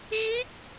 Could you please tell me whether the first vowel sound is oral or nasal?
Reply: oral